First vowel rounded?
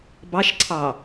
no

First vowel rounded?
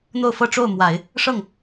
yes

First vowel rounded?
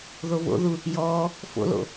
yes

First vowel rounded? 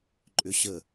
yes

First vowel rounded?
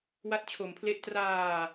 no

